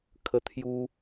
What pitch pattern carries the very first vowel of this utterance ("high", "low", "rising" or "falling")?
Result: high